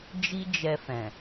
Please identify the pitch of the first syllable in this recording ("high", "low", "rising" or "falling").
high